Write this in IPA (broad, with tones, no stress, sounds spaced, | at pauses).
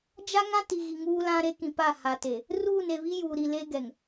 d͡ʒ a˦ ŋ ã˦ t i˨ ɣ i˨ ŋ uː˦ l ã˦ ɾ e˦ k ĩ˨ p a˦˨ h a˨ t e˨ | r uː˦˨ n e˨ β i˦ j uː˨ ɾ i˨ l eː˦ ɡ ɛ˨ ŋ